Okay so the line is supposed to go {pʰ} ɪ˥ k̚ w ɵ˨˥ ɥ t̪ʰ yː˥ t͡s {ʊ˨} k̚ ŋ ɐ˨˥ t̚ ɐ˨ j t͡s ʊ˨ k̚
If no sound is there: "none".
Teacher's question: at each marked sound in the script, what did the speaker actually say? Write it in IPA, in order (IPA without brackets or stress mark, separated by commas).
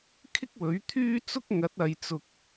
kʰ, ʊ˥